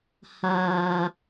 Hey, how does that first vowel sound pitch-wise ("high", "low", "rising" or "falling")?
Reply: low